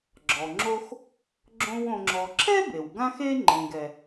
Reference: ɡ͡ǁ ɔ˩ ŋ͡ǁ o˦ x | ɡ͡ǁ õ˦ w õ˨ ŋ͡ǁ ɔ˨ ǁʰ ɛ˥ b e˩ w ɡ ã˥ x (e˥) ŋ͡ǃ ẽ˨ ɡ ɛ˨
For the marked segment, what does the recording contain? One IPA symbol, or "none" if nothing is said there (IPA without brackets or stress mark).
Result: e˥